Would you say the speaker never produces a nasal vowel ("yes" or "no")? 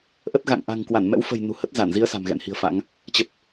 yes